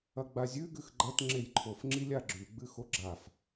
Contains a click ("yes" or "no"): yes